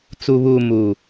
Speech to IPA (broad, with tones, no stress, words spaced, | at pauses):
t͡su˨βuː˨ mu˨